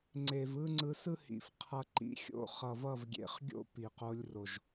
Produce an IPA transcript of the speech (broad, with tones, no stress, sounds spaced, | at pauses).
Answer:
ŋ͡ǀ e˨ v ɯ˦ ŋ͡ǀ ɯ˧ s ɯ˦ h ḭ˨ f qʰ ʌ˧ ǃ ḭ˦ xʲ o̰˦ χ ʌ˨ v ʌ˦˨ v ɡʲ ḛ˨ χ ɡʲ o̰˦ p i˨ q o˧ lʲ r o˨ ʒ